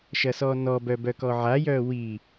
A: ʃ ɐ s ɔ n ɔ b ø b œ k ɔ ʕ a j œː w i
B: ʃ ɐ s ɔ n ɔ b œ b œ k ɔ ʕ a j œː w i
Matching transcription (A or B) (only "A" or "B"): B